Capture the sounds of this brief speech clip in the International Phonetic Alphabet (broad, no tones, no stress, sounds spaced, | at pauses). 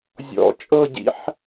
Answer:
zʲ ɔ̰ t͡ʃʼ ɤ ɟ ḭ ħ